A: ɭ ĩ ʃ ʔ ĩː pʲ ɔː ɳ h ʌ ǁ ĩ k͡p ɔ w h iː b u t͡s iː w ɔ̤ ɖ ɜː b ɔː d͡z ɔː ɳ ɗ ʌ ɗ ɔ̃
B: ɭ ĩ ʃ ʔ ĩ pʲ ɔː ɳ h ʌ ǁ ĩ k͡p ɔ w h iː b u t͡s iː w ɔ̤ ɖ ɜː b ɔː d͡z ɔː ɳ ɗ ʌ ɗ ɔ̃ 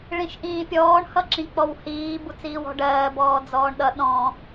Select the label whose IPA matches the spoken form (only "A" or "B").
A